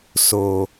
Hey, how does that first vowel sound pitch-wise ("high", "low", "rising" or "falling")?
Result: low